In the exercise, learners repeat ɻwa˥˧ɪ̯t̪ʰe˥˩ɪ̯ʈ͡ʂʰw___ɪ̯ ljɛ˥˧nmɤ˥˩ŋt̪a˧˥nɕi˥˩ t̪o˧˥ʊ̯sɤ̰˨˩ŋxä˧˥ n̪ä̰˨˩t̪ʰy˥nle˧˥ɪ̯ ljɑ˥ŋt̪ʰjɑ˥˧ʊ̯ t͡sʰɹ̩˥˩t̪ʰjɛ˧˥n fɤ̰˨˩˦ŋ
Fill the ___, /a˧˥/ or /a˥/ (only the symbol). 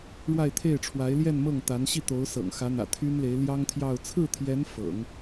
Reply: a˧˥